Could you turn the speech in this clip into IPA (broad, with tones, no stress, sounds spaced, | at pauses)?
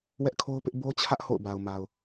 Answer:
w ɛ˦ ʔ kʰ o˦ ʊ̯ p ɪ˦ ʔ b o˦ t͡ɕʰ ä˦ ʔ h o̰˦˨ ʊ̯ b a˨ ʊ̯ m a˨ ʊ̯